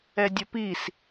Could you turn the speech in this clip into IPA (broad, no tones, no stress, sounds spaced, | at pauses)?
ɛ dʲ ʌ p i s